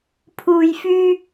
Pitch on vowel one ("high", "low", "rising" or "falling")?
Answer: low